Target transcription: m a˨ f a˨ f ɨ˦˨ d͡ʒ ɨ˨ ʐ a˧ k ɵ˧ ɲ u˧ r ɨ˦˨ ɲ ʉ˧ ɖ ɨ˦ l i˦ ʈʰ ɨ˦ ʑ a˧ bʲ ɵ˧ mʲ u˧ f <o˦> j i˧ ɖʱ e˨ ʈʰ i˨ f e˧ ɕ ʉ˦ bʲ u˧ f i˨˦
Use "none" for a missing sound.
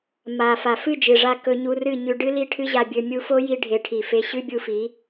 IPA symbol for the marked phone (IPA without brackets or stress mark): o˦